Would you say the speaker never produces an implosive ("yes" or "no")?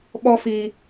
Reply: no